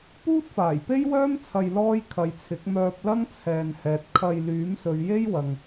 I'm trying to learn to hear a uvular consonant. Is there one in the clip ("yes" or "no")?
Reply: no